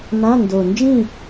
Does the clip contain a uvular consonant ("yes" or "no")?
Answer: no